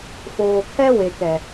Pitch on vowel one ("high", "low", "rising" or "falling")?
low